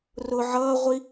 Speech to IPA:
r ʊ ʕ ʌː ʁʷ i

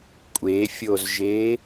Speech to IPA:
kʷʼ e fʲ o z ʒ e

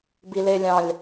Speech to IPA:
b i l e lʲ ɑ̃ lʲ

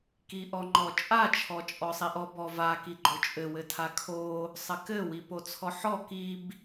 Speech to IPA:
k i ʔ ɔ ŋ͡ǃ ɔ t͡ʃʼ a t͡ʃʰ ɔ t͡ʃʼ ɔ sˤ i ʔ ɔ b ɔ v a k i ɡ͡ǃ o t͡ʃʼ ɘ w ɘ tʰ a kʰ o | sˤ ɘ k ɘ w i p o t͡sʰ ɔ ħ ɔ k i b

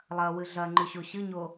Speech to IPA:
lˠ ɐ w ɨ ɮ ɐ ŋ͡ǃ ʉ ɕ o ɕ ɨ ɲ o

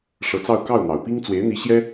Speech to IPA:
ʂ ɤ˧˥ t͡s ɑ˥˧ ʊ̯ k ɑ˥˩ ʊ̯ n̪ ɑ˨˩ ʊ̯ p i˥ ŋ t͡s w e˧˥ ɪ̯ n̪ i˧˥ ɕ j ɛ˥

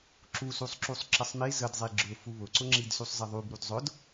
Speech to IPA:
ǁ u s u sˤ ǁ u sˤ ǁ ə sˤ m i z ə d zˤ i ɡ͡ǁ ʊ f u β ʊ ǀ ʊ ŋ͡ǁ i d s u sˤ z ə ðˤ u b ɾ u d zˤ ʊ d

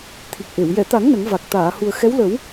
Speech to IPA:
t̪ʰ i˨˩ k̚ ʔ e˨˩˨ w j ɛ˨˩˨ t̪ a˨˩˦ ŋ n ə˨˩˦ ŋ v a˨˩ k̚ t̪ aː˨˩˨ h u˨˩ ə̯ x ɛ˧˥ w l ə˨˩˦ w

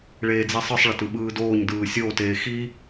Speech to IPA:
ɭ eː d͡z i sˤ ɯ sˤ ɭ ʌ t ɯ ɓ ɯː d oː ɲ d ɯː sʲ oː t eː x i

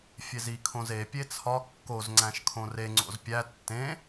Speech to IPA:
fʲ e z i kʰ õ z e pʲ e t͡sʰ ɒ kː o z ŋ͡ǀ æ̃ ʃ kʰ õ r e ŋ͡ǀ o̰ z pʲ æ tː ẽ

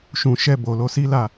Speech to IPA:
ʃ ũ˨ ʃ ɛ˧ b o˨ l o˨˦ s i˦ l a˦˨

